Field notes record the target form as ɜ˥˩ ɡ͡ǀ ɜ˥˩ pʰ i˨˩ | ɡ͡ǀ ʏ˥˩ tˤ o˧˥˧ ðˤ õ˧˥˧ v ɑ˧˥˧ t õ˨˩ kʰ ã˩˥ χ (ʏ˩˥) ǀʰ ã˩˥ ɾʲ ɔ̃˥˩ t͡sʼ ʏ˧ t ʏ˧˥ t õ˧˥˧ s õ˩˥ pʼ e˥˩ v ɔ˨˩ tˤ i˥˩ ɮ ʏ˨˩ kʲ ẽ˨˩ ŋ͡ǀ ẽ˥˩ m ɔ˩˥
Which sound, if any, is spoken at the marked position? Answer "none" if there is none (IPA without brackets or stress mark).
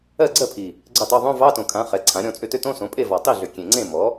ɛ˩˥